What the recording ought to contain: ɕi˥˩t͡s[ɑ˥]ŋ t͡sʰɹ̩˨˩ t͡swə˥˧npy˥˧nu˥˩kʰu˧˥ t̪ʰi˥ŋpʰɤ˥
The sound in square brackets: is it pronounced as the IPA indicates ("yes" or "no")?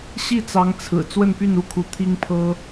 no